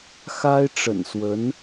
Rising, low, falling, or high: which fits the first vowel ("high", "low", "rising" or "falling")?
high